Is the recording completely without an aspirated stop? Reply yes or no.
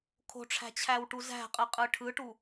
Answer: no